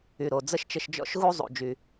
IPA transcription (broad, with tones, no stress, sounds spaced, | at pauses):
y˩ ɾ o˩ d͡z ə˥ ʃ t͡ʃ ə˧ ʃ d͡ʒ ɔ̰˥ ʃ ɣ u˥ zˤ ṵ˩ d͡ʒ y˩